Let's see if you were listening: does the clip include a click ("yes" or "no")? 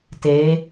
no